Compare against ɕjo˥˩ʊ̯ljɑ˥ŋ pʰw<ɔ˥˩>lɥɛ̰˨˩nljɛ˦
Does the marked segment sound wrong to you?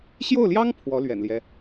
yes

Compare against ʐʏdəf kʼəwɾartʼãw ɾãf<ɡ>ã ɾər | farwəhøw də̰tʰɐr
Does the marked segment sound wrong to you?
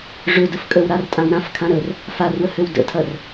yes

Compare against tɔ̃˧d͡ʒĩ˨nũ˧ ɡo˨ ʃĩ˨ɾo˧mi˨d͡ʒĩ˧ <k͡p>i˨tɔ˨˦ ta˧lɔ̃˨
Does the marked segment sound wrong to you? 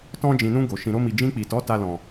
no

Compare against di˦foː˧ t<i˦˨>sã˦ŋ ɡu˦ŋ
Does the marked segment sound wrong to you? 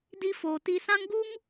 yes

